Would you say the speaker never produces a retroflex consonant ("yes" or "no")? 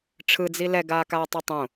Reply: no